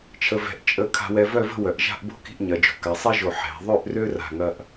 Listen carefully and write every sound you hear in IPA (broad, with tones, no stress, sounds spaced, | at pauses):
t͡ʃʰ ə˧ v ɛ̤˧ ʔ t͡ʃʼ ə˧ kʰ a̤˧ w ɛ˧ v œ˥˧ v ə̤˥˧ w œ˩˧ ʔ ʒ a̤˥˧ ʔ b o̤˥ k i̤˥˧ ʔ ɲ ɐ˩˧ d͡ʒ o̤˩˧ k a˩˧ sˤ ɛ˥ ʒ o˧˩ ħ ɛ̤˩˧ ðˤ ø˥˧ ʔ r ø˥ r a̤˧˩ ŋ ɐ˧ ʔ